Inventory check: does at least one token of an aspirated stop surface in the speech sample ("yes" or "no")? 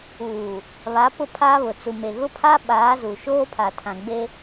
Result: yes